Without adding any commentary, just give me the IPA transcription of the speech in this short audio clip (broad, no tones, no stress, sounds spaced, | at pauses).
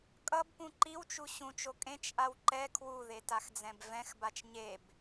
kʼ ʌ b p ũ ǃ i w t͡ʃ u ɕ ũ t͡ʃ o kʼ ẽ t͡ʃ ʔ a w ǃ ɛ kʰ w u ð e t a x d͡z ɛ̃ b v ɛ̃ x b a t͡ʃ ɲ e b